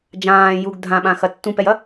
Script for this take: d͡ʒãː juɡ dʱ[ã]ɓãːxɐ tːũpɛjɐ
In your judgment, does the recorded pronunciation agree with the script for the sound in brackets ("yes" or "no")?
yes